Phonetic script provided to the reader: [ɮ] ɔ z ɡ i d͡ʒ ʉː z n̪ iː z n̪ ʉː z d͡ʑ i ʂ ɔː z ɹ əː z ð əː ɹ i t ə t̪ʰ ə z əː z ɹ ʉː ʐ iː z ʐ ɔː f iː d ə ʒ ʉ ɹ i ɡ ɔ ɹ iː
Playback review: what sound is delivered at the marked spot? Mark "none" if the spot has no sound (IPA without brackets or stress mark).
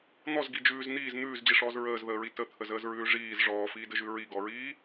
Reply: n̪